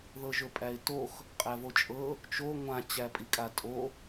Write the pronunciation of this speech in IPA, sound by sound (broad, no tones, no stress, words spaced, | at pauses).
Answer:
ðɤʒɵpʼæɪ̯tox | qʼævot͡ʃʼɤ | t͡ʃo ŋʷã t͡ɕæpʼikʼatʼo